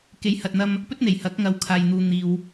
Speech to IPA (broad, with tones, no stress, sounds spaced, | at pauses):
k e˨˥ j h ɐ˨ t̚ n̪ ɐ˧ m | p ɵ˥ t̚ n̪ e˨˩ j h ɐ˨˥ k̚ ŋ ɐ˨˧ w kʰ aː˨ j n̪ uː˨ n̪ iː˨ w